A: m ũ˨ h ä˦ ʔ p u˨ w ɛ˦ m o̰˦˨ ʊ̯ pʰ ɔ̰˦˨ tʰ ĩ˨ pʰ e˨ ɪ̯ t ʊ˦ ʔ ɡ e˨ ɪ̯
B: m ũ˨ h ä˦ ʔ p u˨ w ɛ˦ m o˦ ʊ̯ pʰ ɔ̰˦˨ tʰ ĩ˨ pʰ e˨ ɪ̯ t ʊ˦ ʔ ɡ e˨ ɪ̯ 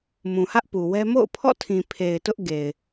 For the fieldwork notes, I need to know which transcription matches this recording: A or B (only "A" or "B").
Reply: A